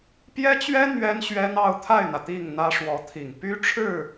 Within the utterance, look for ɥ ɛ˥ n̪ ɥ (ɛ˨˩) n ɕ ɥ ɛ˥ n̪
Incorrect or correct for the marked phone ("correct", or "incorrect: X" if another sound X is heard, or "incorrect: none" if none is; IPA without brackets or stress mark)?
incorrect: ɛ˥